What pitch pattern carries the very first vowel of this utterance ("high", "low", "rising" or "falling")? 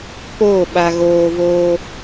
falling